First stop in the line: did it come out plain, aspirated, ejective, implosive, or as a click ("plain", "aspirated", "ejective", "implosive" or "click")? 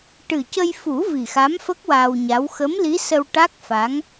plain